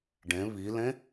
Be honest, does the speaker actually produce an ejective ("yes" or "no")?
no